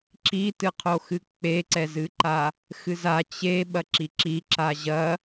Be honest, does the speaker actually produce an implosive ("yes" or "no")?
yes